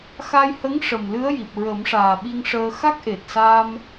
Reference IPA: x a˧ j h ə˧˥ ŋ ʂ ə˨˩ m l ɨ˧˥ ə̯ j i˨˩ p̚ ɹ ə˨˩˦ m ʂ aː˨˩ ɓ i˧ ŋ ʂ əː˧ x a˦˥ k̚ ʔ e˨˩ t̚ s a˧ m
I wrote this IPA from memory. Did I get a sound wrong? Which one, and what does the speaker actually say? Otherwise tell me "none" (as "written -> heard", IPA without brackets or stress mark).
none